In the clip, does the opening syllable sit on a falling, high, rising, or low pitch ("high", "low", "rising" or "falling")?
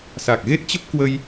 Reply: low